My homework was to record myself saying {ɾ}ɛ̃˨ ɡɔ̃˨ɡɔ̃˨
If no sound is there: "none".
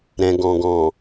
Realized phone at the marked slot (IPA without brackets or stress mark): ɾ